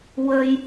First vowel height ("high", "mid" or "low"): mid